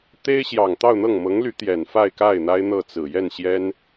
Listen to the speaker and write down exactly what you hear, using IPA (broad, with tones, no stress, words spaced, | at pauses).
t̪e˥ɪ̯ɕjɑ˨˩ŋt̪ɑ˥˧ʊ̯n̪ɤ˥˩ŋ mɤ˧˥ŋly˧˥ t̪jɛ˨˩nfa˥˧ɪ̯ka˥˩ɪ̯ n̪a˥ɪ̯n̪ɤ˥˩t͡sɹ̩˨˩ jɛ˥˩nɕjɛ˥n